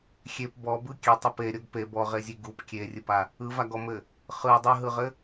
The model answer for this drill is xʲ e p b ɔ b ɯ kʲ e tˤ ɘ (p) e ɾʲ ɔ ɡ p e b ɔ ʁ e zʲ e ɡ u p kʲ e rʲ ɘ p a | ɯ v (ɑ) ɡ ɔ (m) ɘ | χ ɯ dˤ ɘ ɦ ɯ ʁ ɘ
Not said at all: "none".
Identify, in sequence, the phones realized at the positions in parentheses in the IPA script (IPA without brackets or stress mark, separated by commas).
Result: p, a, m